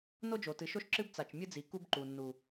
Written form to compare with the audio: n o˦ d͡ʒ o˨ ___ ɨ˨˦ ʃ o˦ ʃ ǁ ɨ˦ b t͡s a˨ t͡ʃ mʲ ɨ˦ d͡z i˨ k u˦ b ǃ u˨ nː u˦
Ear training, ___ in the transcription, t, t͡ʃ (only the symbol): t